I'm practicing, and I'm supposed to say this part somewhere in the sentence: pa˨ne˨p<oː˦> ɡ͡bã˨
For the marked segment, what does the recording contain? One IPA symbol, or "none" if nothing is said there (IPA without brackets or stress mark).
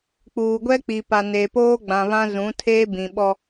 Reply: oː˦